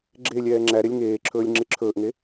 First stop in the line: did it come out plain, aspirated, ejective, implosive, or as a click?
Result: click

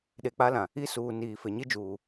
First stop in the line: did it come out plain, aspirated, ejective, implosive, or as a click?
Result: implosive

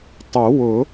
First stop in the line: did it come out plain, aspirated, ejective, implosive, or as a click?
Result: plain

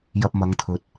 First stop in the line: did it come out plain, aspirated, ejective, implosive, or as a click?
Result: plain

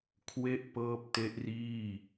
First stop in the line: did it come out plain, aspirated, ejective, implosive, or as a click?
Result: aspirated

